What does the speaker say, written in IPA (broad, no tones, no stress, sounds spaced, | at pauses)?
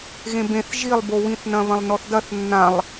ɣ ẽ b ẽ θ ʒ i lˠ b o w ĩ θ n ɐ̃ β ɐ̃ lˠ n ɔ θ d ɐ θ nː ã lˠ